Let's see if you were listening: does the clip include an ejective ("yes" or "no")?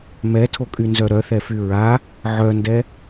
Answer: yes